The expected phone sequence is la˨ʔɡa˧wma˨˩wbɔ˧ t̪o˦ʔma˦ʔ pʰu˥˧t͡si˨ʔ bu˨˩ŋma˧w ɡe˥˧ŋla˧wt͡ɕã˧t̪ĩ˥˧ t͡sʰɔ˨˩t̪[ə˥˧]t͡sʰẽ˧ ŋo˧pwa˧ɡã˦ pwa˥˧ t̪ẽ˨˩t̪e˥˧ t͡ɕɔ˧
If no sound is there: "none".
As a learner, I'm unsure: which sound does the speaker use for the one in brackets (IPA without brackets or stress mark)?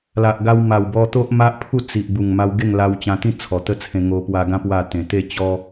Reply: ə˥˧